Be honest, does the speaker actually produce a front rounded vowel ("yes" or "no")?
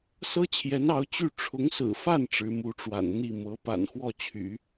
yes